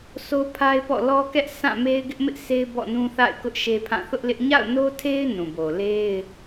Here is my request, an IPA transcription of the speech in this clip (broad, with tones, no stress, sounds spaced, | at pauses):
s o˦ pʰ a˦ ɪ̯ p ɔ̰˦˨ l ɔ˦ k ɛ˦ ʔ s ã˦˨ m e˦ ɪ̯ ɡ ɪ˦ ʔ m ɪ˦ ʔ sʰ e˦ ɪ̯ b ɔ̰˦˨ n ũ˦ θ a̰˦˨ ɪ̯ k ʊ˦ ʔ ʃ e˦ pʰ ã˦˨ θ ʊ˦ ʔ l ɪ˦ ʔ ɲ a̰˦˨ ʊ̯ n o˦ tʰ e˦ ɪ̯ n ũ˨ b o˨ l e˦ ɪ̯